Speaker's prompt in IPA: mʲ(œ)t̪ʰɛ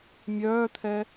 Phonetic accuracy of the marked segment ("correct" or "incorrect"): incorrect